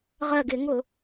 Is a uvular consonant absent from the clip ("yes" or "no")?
no